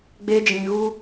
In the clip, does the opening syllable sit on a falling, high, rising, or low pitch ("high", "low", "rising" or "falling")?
high